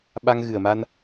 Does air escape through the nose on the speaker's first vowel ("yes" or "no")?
no